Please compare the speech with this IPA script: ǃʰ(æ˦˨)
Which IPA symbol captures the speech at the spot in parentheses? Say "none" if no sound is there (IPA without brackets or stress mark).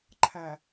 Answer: æ˨